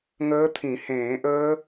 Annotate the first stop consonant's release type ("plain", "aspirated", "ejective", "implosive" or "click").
aspirated